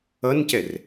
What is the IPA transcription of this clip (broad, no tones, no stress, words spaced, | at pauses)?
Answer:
ʌncɛr